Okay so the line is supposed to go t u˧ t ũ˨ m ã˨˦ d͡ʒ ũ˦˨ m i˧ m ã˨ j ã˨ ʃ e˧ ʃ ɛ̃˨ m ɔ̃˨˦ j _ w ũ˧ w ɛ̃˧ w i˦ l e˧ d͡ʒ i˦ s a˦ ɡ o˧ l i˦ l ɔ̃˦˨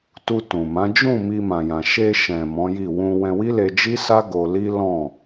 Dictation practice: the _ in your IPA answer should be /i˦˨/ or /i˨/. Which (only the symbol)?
i˦˨